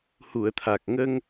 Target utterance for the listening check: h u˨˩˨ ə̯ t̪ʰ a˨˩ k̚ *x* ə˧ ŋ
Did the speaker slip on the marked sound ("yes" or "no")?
yes